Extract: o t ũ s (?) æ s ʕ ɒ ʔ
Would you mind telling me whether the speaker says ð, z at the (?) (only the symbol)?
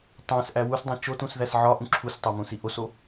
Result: ð